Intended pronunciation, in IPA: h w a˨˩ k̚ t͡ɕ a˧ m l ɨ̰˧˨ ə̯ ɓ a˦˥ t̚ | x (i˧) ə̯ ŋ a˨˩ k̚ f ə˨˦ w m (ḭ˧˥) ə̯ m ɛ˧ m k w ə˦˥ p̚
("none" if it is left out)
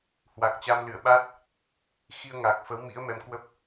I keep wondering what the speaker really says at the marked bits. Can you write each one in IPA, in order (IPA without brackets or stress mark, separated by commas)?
i˧, ḭ˧˥